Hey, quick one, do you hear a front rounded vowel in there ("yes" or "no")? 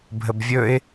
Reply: no